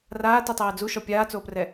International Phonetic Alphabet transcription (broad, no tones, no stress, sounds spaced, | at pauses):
r aː t i tˤ ɛː d͡z u ʃ ɔ pʲ aː t͡s oː p r ɛ